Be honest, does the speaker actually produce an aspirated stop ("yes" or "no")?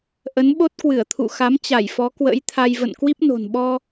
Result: yes